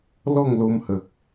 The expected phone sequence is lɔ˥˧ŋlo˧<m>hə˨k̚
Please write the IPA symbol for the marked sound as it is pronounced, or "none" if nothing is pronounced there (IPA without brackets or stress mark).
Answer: m